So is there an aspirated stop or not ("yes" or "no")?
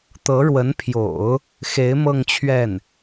yes